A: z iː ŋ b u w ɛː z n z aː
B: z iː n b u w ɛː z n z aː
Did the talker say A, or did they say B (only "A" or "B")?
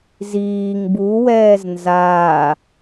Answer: A